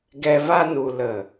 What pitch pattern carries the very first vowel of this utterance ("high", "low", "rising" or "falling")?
low